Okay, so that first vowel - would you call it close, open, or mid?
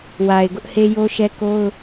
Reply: open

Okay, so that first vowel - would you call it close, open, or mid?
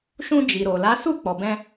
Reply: close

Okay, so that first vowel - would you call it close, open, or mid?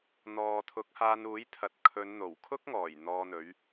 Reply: mid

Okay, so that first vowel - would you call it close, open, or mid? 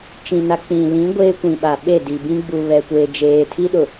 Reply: close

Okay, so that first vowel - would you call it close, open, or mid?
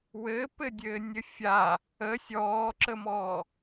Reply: mid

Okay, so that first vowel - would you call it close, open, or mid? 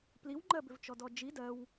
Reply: close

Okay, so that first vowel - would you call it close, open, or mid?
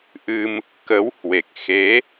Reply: close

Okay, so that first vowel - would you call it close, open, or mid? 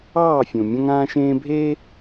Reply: open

